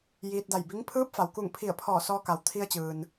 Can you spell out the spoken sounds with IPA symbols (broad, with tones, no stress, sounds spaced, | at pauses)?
j iː˧ t̚ d a˧˩ j b i˧˥ ŋ pʰ ɯː˧˥ p̚ f a˩ w k u˧˩ ŋ pʰ i˧˩ ə̯ pʰ ɔː˧˩ s ɔː˧ k a˩ w t̪ʰ i˧ ə̯ t͡ɕ ɯː˩ n